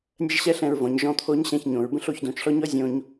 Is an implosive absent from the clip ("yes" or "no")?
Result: yes